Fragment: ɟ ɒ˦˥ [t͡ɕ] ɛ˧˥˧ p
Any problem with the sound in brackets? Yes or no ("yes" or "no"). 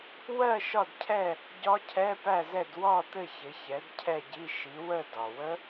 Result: yes